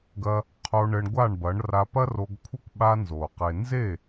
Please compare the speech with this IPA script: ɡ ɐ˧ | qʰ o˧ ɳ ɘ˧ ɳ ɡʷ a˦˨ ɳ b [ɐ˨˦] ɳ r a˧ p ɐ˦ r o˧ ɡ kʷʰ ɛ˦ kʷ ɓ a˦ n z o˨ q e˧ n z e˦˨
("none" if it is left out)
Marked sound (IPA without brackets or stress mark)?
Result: ɐ˨˦